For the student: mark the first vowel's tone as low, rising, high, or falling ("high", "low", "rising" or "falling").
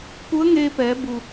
rising